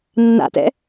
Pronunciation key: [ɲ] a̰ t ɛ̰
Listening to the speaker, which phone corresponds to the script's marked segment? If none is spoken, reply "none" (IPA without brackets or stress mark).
nː